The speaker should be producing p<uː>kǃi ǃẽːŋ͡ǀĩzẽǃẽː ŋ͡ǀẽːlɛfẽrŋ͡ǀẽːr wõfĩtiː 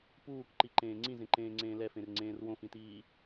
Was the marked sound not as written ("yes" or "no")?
no